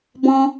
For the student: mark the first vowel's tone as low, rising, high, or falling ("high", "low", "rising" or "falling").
high